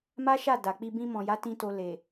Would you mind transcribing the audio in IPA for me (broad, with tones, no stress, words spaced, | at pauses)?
ma˦ʃa˦˨ da˨k͡pi˧ bĩ˧mɔ̃˨ja˨˦tĩ˧ to˧ le˨